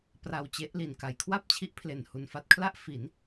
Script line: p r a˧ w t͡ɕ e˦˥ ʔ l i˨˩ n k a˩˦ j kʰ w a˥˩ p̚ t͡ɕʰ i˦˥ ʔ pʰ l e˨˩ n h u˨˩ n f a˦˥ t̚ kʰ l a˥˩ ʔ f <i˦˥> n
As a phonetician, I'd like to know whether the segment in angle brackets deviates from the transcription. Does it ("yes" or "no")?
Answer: yes